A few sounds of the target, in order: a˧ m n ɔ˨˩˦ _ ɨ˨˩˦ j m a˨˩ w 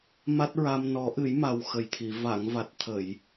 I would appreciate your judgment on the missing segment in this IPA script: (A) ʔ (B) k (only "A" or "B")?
A